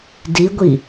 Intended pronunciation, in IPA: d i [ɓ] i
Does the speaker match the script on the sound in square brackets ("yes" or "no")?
no